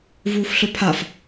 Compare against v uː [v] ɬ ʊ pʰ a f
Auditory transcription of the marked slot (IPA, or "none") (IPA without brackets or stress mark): f